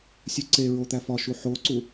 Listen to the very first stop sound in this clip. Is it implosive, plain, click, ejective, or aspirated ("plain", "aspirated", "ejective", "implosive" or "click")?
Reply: click